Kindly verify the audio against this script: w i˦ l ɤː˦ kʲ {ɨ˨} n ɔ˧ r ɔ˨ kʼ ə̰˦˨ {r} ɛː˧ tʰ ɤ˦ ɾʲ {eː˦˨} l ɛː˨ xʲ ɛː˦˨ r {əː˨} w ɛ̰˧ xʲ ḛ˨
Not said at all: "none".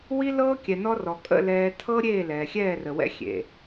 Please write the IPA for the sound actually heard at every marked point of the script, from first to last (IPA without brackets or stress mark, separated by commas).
ɛ˨, l, eː˦˨, ə˨